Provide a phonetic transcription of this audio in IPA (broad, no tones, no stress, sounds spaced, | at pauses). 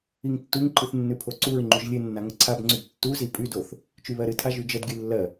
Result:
i ŋ tː u ŋ ǃ ɨ θ nː ʉ pʰ o ǀ u ɹ ŋ͡ǃ y ʒ lʲ ɨ nː a ŋ ə ǀʰ a b ŋ͡ǀ y b tː u z i pʼ y d o θ | t͡ʃ y β ɜ ɾ ɨ tʰ a ʒ y d͡ʒ ə d ɡʲ ʉ lː ɜ